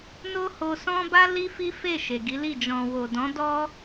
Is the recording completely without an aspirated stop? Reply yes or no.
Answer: yes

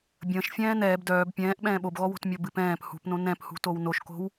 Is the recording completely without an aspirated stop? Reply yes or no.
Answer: yes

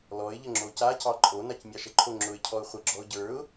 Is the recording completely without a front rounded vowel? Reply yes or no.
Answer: yes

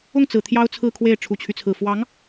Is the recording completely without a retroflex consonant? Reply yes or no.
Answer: no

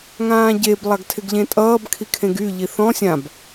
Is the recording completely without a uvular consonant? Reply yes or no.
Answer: yes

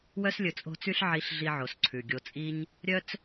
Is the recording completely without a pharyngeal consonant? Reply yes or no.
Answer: no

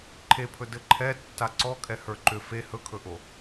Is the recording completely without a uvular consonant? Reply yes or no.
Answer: yes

